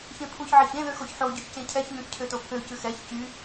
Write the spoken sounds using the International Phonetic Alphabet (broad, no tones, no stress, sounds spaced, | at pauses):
ç ẽ pʰ u ç ʕ e ç ẽ ð ø x o ç ħ o ɟ y ç c ẽ cʰ ɛ ç n ũ ç cʰ ø t o pʰ ø c ʉ x ɛ ç c y